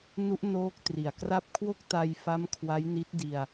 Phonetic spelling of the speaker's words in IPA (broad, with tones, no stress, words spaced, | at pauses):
nu˦˥ʔnoː˦˥k̚tri˨˩a̯kra˥˩p̚ kʰwo˥˩k̚ta˧jfa˦˥m kʰwa˦˥jni˦˥t̚di˧a̯